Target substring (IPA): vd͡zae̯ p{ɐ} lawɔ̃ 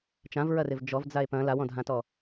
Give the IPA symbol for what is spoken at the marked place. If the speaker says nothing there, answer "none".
ɐ̃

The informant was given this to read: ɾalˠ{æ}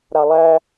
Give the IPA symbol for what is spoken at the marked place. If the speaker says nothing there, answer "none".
æ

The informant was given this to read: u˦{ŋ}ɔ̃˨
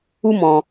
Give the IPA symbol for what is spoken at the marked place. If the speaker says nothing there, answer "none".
m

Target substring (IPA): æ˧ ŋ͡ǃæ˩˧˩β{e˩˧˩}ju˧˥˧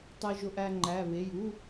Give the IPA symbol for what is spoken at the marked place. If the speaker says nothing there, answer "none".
e˩˧˩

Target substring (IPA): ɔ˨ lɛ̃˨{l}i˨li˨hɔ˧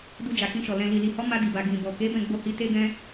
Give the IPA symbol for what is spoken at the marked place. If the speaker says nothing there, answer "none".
l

